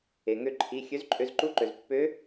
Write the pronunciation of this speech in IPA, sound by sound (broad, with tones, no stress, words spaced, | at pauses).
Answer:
e˩ŋø˧ ǃʰi˩˧˩ xʲø˧˥zǃʼø˧z ǃu˧˥ǃø˩zpːø˧˥